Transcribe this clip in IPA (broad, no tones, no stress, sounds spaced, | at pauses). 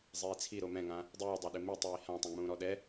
zˤ iː t͡sʰ i ɾ o m ɛ̃ ŋ ã | dˤ iː dˤ a ɗ ɪ m i tˤ iː h ã tˤ ẽ ŋ͡m ũː ɾ ɔ ɗ ɛ